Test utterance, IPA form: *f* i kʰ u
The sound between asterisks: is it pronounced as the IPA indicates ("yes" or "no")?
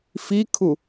yes